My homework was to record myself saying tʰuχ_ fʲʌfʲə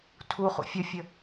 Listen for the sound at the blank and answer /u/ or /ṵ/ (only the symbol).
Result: ṵ